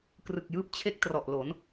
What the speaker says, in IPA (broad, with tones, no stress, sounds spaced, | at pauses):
k r ɯ˨˩ k̚ j ɯː˦˥ p̚ t͡ɕʰ e˦˥ k̚ t r ɔ˨˩ ʔ l o˩˦ n